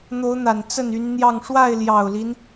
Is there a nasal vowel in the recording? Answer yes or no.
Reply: no